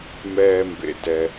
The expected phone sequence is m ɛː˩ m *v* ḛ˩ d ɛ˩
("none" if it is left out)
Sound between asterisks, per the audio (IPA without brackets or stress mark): b